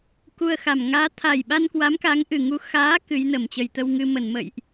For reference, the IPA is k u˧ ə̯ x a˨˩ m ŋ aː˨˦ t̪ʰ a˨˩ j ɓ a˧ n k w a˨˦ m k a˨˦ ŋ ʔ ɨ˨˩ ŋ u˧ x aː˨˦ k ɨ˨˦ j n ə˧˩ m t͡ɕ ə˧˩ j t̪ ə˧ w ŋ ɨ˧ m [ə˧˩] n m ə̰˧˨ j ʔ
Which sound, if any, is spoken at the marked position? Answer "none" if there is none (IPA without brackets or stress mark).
ə˧˩